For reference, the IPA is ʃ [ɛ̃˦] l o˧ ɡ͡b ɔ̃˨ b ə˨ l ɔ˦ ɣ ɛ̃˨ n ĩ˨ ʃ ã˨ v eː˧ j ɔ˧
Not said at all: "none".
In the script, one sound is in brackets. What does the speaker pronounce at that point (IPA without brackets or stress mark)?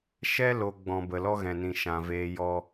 ɛ˦